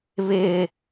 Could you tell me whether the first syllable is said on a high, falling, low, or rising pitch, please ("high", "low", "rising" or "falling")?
high